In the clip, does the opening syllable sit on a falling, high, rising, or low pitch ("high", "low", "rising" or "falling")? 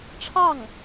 falling